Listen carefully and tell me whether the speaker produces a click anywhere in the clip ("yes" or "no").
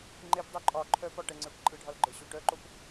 yes